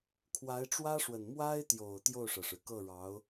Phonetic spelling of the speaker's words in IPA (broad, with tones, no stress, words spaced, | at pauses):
kʰwa˧˥ɪ̯ʈ͡ʂwä˥ʂwə˨˩n mwa˥ɪ̯t̪jo˨˩ʊ̯ t̪jo˥˩ʊ̯ʂɤ˩ʂɻ̩˩ kɤ˥˩ɻɑ˧˥ʊ̯